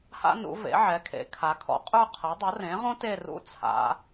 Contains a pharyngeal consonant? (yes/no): yes